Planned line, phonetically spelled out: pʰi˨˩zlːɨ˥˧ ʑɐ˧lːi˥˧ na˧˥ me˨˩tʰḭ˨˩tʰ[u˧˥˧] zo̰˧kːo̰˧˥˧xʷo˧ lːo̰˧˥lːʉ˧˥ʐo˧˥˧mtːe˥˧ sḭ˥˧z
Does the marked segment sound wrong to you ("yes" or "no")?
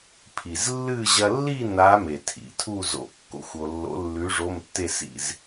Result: yes